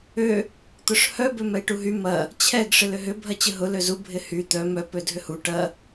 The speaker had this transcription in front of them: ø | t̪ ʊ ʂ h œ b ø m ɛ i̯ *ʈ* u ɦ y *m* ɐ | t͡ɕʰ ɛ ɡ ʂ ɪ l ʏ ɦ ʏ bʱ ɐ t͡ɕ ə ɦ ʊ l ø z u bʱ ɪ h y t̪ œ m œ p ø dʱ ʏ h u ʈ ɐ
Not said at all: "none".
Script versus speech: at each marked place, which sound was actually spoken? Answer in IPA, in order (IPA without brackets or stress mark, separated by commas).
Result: ʈ, m